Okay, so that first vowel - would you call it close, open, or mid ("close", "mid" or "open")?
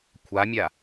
open